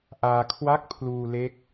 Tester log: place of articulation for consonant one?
glottal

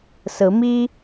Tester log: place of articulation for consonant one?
alveolar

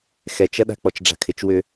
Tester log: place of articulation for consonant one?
velar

